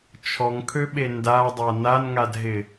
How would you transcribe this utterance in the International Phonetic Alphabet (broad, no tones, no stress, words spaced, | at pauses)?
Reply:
t͡ʃʰɔŋkʰøɓe ndadˤa nanŋadɦɪ